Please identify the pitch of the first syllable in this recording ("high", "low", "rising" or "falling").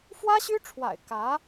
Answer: high